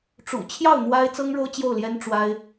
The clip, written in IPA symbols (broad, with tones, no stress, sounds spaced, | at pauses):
ʈ͡ʂ ṵ˨˩ t͡ɕʰ j ɑ˥˩ ʊ̯ n̪ w a˥ ɪ̯ t͡s ɤ˥ ŋ ɻ o˥ ʊ̯ t͡ɕ j o˥˩ ʊ̯ l j ɛ˥ n ʈ͡ʂ w a˥ ɪ̯